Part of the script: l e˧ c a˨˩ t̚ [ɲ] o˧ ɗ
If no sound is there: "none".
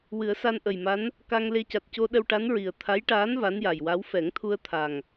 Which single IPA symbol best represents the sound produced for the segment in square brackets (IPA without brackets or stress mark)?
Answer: c